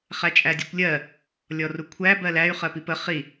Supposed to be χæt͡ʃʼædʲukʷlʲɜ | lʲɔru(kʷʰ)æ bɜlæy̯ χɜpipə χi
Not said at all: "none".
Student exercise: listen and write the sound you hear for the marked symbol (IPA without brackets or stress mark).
kʷʰ